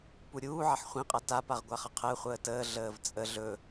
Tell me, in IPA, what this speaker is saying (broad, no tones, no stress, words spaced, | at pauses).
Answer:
puɾʲuː ʕʌħχʷĩqʼa tapaʁ ɡʷaχʌqʰəːχʷəː təː ɮəːvt͡sʼə ɮɵ